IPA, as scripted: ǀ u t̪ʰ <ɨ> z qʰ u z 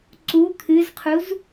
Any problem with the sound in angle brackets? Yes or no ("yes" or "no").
no